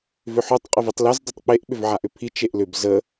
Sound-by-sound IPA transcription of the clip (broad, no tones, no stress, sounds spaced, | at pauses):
v ʏ ħ ɵ tˤ qʼ ə v i tˤ l ɛ z dˤ ʏ tˤ k͡p e ʔ ɓ ʏ v ʕ a ʔ ʏ pʰ i t͡ʃ e ʔ l ʏ b z ə